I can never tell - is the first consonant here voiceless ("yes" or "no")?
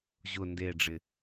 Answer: no